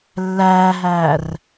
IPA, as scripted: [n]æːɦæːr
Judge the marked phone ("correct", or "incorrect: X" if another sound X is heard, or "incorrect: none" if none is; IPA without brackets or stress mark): incorrect: lː